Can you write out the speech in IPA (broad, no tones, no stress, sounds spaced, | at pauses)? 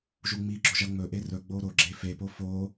ʒ u ŋ͡m i ɡ͡ǁ o ʒ ɐ ŋ͡m ɵ ʔ e r ɵ ɡ͡b o ɾ o ɡ͡ǁ e f e p o f o